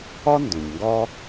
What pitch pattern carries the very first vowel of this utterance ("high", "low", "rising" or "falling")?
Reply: high